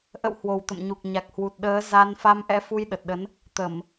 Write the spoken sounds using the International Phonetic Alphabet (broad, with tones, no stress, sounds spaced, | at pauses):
ʔ ə̰˧˨ w h w o˨˩ w t̪ ə̰˧˨ m ɲ u˨˩ k̚ ɲ a˨˩ k̚ h w u˨˩ t̚ ɗ əː˨˦ z a˧ n f a˧ m ʔ ɛ̰˧˥ f u˧ j ɗ ə˨˩ t̚ ɗ ə˨˦ n | t̪ ə˧˩˨ m